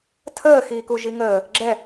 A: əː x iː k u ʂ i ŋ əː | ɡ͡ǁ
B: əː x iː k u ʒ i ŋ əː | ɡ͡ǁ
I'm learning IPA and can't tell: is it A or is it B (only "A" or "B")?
B